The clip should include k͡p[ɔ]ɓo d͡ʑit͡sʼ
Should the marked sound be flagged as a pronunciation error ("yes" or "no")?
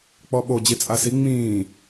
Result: no